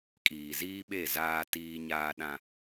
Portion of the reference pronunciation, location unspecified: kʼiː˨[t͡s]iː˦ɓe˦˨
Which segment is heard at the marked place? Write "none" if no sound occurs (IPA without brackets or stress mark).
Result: z